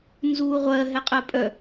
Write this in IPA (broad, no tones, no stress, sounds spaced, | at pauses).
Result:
n z uː ʁʷ ɜ ɦ ɛ qʼ ɜ pʼ œ